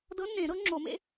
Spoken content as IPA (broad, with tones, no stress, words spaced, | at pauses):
dɤ˧˥nːẽ˨˩˦ ɾɤ˩˥ŋ͡ǁo˨˩˦mḛ˧˥